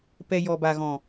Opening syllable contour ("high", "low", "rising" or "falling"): low